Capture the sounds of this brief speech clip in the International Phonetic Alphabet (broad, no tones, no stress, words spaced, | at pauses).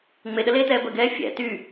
ŋ͡meɗəleːtɛː bəɡɛː fʲæ̰ ty